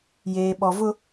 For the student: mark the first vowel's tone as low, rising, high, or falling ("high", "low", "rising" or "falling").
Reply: low